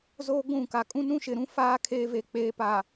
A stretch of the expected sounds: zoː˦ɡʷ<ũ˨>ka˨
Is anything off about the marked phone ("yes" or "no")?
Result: yes